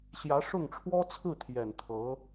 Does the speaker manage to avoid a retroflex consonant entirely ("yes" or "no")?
no